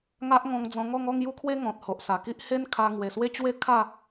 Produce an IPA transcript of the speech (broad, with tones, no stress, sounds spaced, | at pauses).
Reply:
ŋ a˦ ʔ ŋ ɔ̃˧ ŋ d͡z ɔ̃˧ ŋ ɔ˥˧ ŋ ɔ˥˧ ŋ j u˦ kʰ w e˦ ŋ ɔ̃˨ t̚ h o˨ ʔ s a˨˩ k i˦ ʔ h e˦ n kʰ a˧ ŋ w e˨˩ s w e˥˧ t͡ɕ w e˥˧ kʰ a˥˧